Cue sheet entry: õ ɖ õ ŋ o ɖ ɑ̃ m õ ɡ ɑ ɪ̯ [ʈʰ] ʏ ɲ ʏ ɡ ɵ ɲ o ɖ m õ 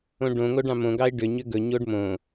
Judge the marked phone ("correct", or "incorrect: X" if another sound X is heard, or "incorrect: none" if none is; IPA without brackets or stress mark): incorrect: ɖ